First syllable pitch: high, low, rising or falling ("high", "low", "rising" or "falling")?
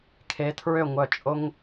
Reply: rising